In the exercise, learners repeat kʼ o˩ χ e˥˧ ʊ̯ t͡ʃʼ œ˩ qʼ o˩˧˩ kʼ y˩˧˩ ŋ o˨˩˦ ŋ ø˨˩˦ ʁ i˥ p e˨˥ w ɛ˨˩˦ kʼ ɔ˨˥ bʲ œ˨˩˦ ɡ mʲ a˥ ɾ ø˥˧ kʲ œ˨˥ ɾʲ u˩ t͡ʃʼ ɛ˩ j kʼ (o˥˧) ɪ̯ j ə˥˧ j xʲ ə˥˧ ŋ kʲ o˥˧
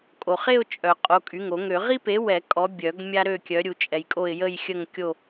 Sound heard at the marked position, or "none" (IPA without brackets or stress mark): o˥˧